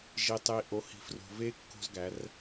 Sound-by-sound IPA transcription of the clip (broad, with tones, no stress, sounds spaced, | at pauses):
ʒ i˨ tˤ i˨ ʔ o˨ h i̤˨ f r o̤˨ v e˦ kː o̤˦ z ɡ æ˨˦ r